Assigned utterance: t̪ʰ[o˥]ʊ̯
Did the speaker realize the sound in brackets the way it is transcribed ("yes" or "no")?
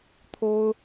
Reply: yes